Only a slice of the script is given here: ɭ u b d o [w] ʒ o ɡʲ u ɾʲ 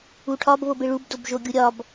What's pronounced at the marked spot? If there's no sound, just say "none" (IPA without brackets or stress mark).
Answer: b